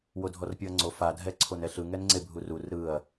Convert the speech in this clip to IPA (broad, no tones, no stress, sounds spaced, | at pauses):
w o dʱ ɔ r pʲ ɯ ɐ̯ ŋ͡ǀ o f a dʱ ɛ ǀʰ o n ɛ ɬ ɯ ŋ ɛ n ŋ͡ǀ e bʱ u r u r ɾ ɯ ɐ̯